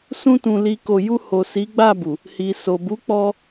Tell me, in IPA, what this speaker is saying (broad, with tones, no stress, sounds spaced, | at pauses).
s ũ˧ t ũ˨ l i˧ k o˧ j u˧ h o˨ s i˨˦ ɡ͡b a˦˨ b u˨ | h i˨ s o˨ b u˨˦ k͡p ɔ˧